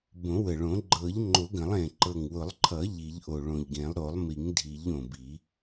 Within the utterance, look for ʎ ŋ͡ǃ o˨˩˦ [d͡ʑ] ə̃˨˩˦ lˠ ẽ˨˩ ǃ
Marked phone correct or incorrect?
incorrect